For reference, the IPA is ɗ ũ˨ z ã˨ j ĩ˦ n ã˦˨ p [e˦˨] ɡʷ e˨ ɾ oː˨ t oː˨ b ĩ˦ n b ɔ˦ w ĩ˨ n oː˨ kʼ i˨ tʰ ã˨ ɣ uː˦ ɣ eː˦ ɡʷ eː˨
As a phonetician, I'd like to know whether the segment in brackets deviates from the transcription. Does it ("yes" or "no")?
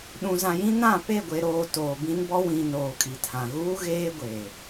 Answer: no